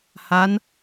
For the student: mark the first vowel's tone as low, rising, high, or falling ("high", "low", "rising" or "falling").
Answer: rising